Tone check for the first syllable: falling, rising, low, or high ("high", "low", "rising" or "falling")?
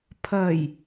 low